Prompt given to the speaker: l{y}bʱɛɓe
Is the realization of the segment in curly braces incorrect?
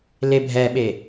yes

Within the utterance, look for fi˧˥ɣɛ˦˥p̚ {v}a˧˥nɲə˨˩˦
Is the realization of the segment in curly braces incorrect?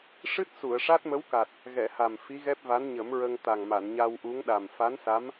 no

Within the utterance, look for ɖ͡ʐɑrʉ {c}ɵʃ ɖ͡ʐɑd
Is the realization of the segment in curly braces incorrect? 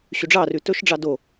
yes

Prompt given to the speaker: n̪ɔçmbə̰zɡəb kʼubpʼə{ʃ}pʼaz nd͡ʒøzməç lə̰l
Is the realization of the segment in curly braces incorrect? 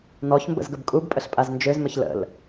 yes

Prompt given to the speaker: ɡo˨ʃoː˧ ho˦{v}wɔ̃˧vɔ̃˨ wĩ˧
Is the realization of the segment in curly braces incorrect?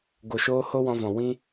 yes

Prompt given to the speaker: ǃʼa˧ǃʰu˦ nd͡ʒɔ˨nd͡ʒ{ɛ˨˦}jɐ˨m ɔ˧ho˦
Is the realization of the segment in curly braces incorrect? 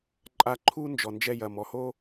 yes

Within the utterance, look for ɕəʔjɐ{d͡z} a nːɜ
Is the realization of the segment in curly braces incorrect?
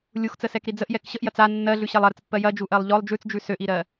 yes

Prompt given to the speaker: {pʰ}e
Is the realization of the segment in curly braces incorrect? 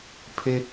no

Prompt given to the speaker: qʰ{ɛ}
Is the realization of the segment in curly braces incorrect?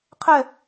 no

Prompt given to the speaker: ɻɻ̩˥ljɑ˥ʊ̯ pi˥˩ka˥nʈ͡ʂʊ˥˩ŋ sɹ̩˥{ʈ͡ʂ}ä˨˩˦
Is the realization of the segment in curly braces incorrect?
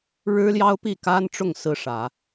yes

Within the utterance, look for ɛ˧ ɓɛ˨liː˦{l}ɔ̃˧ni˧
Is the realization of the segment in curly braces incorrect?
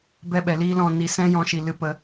no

